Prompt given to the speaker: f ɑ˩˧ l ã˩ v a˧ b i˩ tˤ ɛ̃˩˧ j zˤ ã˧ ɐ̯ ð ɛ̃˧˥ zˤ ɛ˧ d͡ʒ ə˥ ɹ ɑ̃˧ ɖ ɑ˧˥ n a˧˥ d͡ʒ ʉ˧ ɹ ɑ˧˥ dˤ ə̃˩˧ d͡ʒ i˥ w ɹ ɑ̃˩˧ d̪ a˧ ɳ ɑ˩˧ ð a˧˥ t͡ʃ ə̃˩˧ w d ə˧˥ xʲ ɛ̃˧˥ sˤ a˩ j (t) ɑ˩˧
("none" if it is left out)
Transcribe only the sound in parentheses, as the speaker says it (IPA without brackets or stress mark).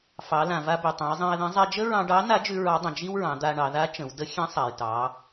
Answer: t